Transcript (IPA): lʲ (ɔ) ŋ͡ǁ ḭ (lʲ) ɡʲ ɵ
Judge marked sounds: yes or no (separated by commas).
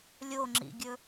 no, no